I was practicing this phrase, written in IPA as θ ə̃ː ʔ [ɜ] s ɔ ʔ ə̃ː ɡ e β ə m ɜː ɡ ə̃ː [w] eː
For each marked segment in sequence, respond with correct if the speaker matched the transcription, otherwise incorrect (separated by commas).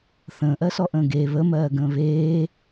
correct, incorrect